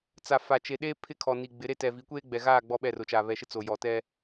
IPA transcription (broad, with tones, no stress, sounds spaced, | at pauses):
t͡s a˨ f a˨ t͡ʃ e˨ ɗ eː˦ pʰ ɪ˦ kʰ ɔ˨ n i˨ ɡ͡b ɪ˨˦ ɾ e˦ t ɛ˨ v i˨˦ kʷ eː˦ ɡ͡b ɛ˨ ɣ aː˦˨ ɡ͡b ɔ˦ ɓ ɛ˦˨ r ʊ˨ t͡ʃ a˨ β ɛ˨ ʃ ɪ˦ t͡s o˨ j ɔ˨ t ɛ˦